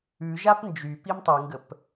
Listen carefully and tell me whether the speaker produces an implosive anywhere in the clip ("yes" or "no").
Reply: no